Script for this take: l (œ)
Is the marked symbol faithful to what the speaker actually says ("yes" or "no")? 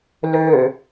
no